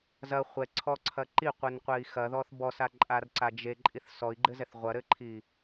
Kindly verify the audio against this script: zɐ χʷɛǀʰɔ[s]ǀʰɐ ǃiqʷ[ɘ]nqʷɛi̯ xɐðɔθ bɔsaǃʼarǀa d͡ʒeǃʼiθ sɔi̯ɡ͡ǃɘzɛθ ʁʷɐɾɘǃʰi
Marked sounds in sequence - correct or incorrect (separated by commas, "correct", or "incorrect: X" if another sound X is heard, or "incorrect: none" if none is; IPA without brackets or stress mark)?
incorrect: none, correct